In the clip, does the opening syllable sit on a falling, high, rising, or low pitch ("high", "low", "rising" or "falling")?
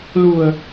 low